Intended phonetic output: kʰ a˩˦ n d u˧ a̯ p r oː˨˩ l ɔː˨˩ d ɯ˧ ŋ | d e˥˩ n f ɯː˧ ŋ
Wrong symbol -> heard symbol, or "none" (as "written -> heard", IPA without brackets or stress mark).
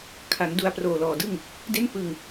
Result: ɯ˧ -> ɯ˥˩